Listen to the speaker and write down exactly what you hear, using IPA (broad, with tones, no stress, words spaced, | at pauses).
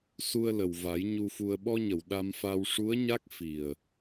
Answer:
su˧ə̯lə˨˩wva˨˩˦j ɲu˧fu˧ə̯ ɓɔ˧ɲə˨˩˨w ɗa˧mfa˧w ʂu˧˥ə̯ɲa˦˥k̚fi˨˩ə̯